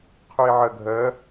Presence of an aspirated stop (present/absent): present